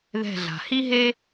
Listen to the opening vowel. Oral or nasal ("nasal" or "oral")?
oral